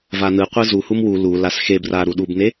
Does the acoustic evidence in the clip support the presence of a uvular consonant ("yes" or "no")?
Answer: yes